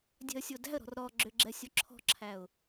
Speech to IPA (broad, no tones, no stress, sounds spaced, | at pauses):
dʲ ɛ̤ ə̯ sʲ o d æ̤ ə̯ ɾ ɔ̤ r ɾ ɔ ɡ͡ǁ ʏ ɡ͡ǁ ɛ sʲ o ǁʰ ɔ̤ ǁʰ æ ʊ̯